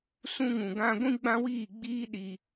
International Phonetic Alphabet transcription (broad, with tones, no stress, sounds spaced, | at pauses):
s ũ˧ ŋ ũ˨ ɡ ã˧ ɡʷ ĩ˧ ɡ͡b ã˧ w iː˦˨ ɡ͡b iː˦ ɗ i˧